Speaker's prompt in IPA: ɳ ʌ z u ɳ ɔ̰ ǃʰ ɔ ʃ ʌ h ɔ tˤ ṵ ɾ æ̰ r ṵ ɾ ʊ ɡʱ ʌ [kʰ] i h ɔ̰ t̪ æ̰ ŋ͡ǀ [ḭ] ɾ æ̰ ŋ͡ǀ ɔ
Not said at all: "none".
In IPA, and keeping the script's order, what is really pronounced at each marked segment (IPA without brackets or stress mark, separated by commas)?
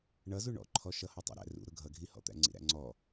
ɡʱ, ḭ